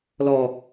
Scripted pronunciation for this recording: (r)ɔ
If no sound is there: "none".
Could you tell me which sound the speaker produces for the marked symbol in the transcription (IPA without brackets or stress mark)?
l